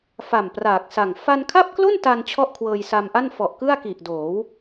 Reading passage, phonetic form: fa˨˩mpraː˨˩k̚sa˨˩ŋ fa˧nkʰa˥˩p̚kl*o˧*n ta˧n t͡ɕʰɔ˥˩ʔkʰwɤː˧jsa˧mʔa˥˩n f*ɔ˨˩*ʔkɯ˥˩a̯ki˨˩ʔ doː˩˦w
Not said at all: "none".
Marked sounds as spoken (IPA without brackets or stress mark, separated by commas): o˥˩, ɔ˨˩